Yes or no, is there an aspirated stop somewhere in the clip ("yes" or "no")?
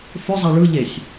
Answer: no